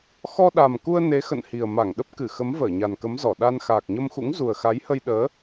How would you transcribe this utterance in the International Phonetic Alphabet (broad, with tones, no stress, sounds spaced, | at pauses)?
x ɔ˧ ɗ a˨˩ m k u˧ ə̯ n e˨˦ x ə̰˧˨ n h i˨˩ ə̯ m a˧˩ ŋ ɗ ə˦˥ p̚ k ɨ˧˩ x ə˨˦ m v əː˧˩ ɲ a˨˩ n k ə˨˦ m z ɔ˧˩ ɗ a˧ n x aː˨˩ k̚ ɲ ə˧ m x ṵ˧˥ ŋ z u˨˩ ə̯ x a˨˦ j h ə˧ j ɗ əː˨˦